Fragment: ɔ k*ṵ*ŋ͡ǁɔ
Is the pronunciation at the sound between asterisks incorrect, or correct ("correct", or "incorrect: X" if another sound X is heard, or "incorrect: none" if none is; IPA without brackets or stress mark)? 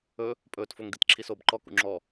correct